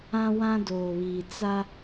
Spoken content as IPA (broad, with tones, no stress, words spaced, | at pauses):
ã˦wã˦doː˨βiː˨ t͡sa˦